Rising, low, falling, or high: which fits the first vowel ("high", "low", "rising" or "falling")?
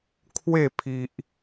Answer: falling